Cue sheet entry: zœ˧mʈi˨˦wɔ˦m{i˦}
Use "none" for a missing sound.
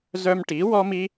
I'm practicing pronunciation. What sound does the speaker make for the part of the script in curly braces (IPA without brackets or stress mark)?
i˦